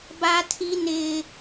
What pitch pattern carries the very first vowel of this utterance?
high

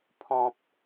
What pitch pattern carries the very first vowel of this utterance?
low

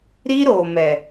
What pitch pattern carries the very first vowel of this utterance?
high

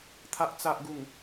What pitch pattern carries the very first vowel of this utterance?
low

